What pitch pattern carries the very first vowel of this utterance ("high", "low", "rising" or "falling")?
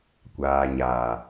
low